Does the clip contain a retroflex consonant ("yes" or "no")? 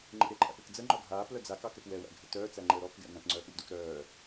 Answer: no